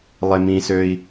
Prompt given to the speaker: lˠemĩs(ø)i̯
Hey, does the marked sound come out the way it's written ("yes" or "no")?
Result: yes